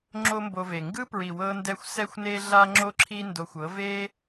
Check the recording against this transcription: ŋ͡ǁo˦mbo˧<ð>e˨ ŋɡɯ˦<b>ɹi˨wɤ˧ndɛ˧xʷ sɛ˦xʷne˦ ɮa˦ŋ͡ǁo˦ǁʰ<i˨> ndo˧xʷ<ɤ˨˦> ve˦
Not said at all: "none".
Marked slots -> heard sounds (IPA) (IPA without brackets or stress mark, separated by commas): v, p, i˦, ɤ˨˦